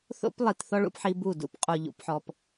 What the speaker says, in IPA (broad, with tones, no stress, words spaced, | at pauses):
θo̰˦plˠi˨tθɔ˦ ɭṵ˦pħi˦bu˦˨ dṵ˦pqʼu˨ ʎṵ˦pħɔ˦p